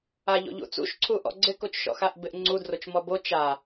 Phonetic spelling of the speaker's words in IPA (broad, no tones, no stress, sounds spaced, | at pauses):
a ʎ o̰ ʎ ṵ t͡s ṵ ʃ ǀʰ u ʔ ɔ̰ ɡ͡ǀ ɪ k o t͡ʃ ʃ ɔ̰ x a ʔ b ɪ ʔ ŋ͡ǀ u d r o t͡ʃ m ɔ b o t͡ʃ a